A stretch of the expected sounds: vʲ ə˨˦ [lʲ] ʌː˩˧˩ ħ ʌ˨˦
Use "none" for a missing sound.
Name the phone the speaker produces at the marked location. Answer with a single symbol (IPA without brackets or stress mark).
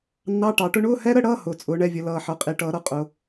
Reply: l